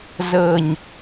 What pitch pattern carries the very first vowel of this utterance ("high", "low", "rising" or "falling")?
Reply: low